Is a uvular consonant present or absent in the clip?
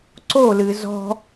absent